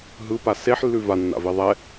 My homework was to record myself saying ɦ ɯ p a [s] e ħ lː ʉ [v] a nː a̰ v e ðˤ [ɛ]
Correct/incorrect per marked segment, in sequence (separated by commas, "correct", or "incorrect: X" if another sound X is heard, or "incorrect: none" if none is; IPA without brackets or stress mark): correct, correct, correct